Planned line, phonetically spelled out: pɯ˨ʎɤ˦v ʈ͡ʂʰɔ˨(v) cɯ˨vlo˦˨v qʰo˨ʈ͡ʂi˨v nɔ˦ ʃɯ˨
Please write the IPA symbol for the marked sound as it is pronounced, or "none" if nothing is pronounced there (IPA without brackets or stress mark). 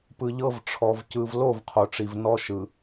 v